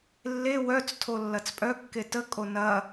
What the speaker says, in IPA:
lːe wœt͡stʰo lːɐt͡spʼœkːe təkʼo nɐ

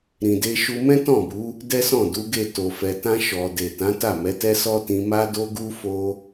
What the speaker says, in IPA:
ɾĩ˨de˧ʃu˧ mɛ̃˦tɔ̃˦˨bu˨˦ | dɛ˦sɔ̃˦˨du˨˦ɡe˦˨ to˨fɛ˨tã˧ ʃɔ˨de˨ tã˨˦ta˦˨mɛ˨˦tɛ˦ sɔ˦tĩ˧ma˦do˦ ɡu˦fo˦

